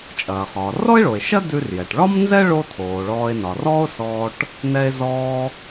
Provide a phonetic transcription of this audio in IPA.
t͡ʃʼɐː˩χɒː˩ rɔ˥e̯ɭo˩e̯ ʃɐ˥dʉ˧rjɛ˩ʈ ɭɒ˥mnzɛ˥ ɭo˥tʰoː˩ɭɔː˧e̯ nɒ˩rɔː˥o̯ sɔː˧ʈ | nɛ˧e̯zɔː˧

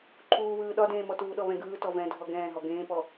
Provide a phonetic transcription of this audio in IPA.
ǃʰuːβɯː ɗɒdẽːmɔ tuːɗɔβɛ̃ɡɯː tɔvɛ̃ dʱɔɡɛ̃ːɦɔ ɡẽːpɔ

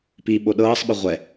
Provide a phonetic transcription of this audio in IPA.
piɓo ɗɤːsˤɓɯ ʁʷɛ

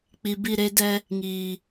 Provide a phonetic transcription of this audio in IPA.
k͡pi˨ bi˦˨ɾe˦dɛ˦ | ŋiː˨

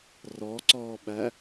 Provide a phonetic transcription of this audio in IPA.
rɔǀɔːɓæ

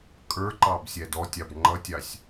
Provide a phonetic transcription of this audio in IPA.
kʼə˞ǃɑb sʲædɔtʲɑb ŋ͡ǃʌtʲɑsʲ

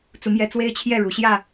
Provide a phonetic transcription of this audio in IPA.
t͡su˨˦mjɛ˨˦ t͡swe˦ɪ̯t͡ɕʰjɛ˥˨ɻu˨˦ ɕjä˥˨

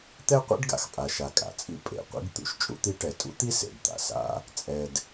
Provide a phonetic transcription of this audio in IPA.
t̪ɛ˥qʷḛ˥ɖɡa̰˩x pʼa˩ʃa˩kʼa̰˩t͡sʼḭ˥ pʼḛ˩qʷḭ˥ɡ t̪ṵ˥ʃt͡ʃʼṵ˥t̪i˥ ʈɛ˩tʼṵ˥t̪i˥ sḛ˩dt̪a̰˩ sa̰˥ | t͡sʼɛ˩d

